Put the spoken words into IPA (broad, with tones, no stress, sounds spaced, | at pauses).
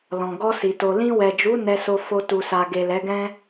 l ɔ̃˨ ɡ ɔ˧ s i˨ t o˨ l ĩ˧ w ɛ˨ d͡ʒ u˨˦ n ɛ˧ s o˧ f o˧ t u˨ s a˨ ɡ e˨ l ɛ˨˦ ɡ ɛ̃˦